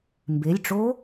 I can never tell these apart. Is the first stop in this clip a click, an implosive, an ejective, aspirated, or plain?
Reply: plain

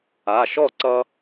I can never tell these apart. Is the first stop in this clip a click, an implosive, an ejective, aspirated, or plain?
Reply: click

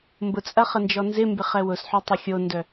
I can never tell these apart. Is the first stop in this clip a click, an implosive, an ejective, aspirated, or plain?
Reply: plain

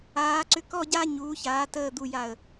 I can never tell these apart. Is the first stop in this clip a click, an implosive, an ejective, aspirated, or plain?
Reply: click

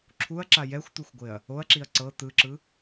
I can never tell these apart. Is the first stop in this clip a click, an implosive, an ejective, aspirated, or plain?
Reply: click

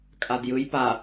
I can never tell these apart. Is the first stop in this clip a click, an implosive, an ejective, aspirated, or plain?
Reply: ejective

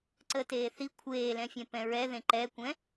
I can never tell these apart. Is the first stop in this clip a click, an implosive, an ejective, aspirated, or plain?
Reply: click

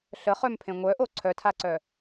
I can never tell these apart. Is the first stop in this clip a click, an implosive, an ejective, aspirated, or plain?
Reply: aspirated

